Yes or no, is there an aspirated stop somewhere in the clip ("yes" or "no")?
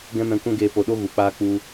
no